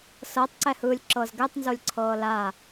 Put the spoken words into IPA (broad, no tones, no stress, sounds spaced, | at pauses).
s ɤ tˤ ǀ ɛ h ɯː lʲ ǁ ɤ z ɡ ɛ tˤ n z o lʲ ǀʰ ɤː l a